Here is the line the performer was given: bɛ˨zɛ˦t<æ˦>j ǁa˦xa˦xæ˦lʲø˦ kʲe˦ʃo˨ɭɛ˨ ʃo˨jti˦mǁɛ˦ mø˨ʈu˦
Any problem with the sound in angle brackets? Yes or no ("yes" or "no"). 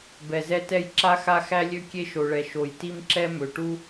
yes